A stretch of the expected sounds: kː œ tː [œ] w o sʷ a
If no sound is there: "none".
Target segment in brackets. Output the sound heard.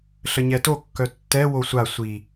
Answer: ɛ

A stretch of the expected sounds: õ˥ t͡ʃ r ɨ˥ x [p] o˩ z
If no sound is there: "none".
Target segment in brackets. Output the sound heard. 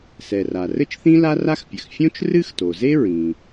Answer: t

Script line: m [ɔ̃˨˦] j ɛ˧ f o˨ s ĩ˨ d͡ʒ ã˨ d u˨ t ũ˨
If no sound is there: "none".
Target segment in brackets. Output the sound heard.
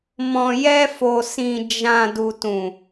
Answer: ɔ̃˨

